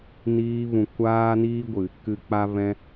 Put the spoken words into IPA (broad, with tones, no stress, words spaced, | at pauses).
niː˧vũ˨ kʷaː˦niː˦ɡʷɨ˨ | kɨ˧ k͡pa˧vɛ̃˧